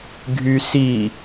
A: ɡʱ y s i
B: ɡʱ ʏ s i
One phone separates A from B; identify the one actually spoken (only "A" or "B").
A